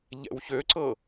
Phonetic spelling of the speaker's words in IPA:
ʎ ɛ̰ w ç ø ǀ ɤ

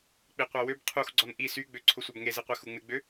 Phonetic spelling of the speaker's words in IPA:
k͡p i qʷ a w ø b qʰ u x ɡ͡ǀ ɔ n ʔ i s y ɡ͡b ø ǀʰ ʊ sʷ a b ŋ e z i qʷ e x u ŋ͡m ɪ ɡ͡b ø

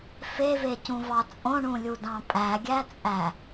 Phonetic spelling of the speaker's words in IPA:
f e v e c ũ v ɑ t͡sʼ õ ɳ ũ lʲ u d ɑ̃ pʼ æ ɡʲ æ t͡sʼ æ

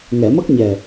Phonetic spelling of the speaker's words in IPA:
ŋ ɛ˨˩˨ m ə˦˥ k̚ ɲ ɛ˨˩

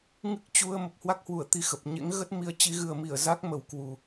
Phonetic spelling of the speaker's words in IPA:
ŋ ɨ˦˥ k̚ t͡ɕ u˧ ə̯ m ə˨˩ p̚ h w a˦˥ k̚ h w u˧˩ ə̯ t̪ i˧ x ə˨˩ p̚ ɲ ḛ˧˥ ŋ ɣ ə˦˥ t̚ m i˨˦ ə̯ t͡ɕ i˨˦ ɣ ɨ˨˩ ə̯ m i˧˩ ə̯ z a˦˥ k̚ m ə˨˩ w k w u˨˩

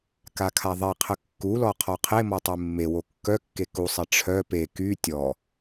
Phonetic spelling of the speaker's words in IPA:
k a kʰ a ðˤ e qʰ ə kː u l ɔ qʰ ɔ qʰ e m ɔ tˤ e mː e w o kː œ kː e k u sˤ e ʈ͡ʂʰ œ p e k y tʲ ɔ

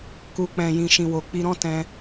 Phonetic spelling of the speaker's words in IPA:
k u˨ k͡p ɛ̃˨ j ĩ˨ ʃ ĩ˨ w o˨ k͡p i˧ ɾ ɔ̃˦ t ɛ̃˧

